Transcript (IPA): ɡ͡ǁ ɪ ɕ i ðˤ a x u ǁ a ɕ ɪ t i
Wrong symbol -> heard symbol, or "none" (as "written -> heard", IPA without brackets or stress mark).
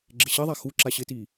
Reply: none